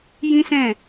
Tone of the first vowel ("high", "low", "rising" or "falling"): high